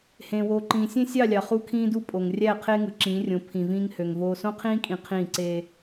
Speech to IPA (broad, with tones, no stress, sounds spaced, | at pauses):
h ẽː˨ w oː˨ ǃ ĩː˨ sʲ ẽ˦ sʲ ɑ˦˨ lʲ ɑ˨ χ u˦ kʰ ĩː˦ d u˦ pʼ o˨ ŋ rʲ æ˦˨ qʰ eː˦ ŋ ɯ˨ ǁ ĩː˨˦ rʲ õ˨˦ pʰ ĩ˨ v ĩː˦ ŋ h ø˨ ŋ v oː˦ s õ˦ qʰ ĩː˦ kʼ ĩ˨ qʰ ĩː˦˨ ǀ eː˦